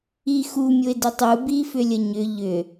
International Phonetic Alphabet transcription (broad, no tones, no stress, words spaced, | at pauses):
ixu mʲʊɪ̯dʏtˤu bifʏlʲəɲʏ ʎʏ